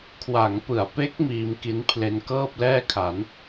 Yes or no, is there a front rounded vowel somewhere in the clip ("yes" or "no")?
no